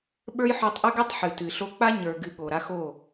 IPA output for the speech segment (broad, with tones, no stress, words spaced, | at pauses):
ɓə˞˦jħo˧tˤʔɨ˦ɡɛ˦tˤ ħɨ˨tɨ˨ɬo˦ k͡pa˦ɲə˞˨ɡɨ˨ ɠo˨ɾa˦xo˦˨